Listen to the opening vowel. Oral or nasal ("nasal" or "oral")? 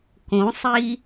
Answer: nasal